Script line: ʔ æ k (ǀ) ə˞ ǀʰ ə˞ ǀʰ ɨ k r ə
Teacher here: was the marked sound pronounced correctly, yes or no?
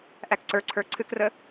yes